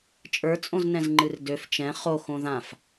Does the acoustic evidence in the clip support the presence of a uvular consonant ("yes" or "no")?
yes